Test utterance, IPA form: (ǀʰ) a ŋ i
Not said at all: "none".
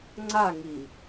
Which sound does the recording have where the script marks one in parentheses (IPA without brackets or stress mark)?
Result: ŋ͡ǀ